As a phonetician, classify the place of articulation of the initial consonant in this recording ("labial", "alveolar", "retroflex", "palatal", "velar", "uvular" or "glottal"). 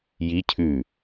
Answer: palatal